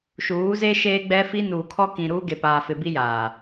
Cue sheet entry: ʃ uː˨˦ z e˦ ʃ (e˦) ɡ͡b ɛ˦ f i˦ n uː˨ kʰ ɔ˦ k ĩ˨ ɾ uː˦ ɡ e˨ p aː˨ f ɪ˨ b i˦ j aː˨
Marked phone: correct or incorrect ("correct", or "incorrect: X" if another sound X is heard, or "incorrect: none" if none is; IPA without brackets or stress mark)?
incorrect: eː˦